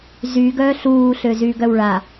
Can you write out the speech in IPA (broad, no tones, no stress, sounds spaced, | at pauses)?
z y ɡ œ ɬ uː ɬ ø z y ɡ œ w ɭ a